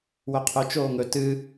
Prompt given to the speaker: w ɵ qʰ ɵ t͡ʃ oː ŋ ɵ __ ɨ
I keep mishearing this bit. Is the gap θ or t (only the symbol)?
t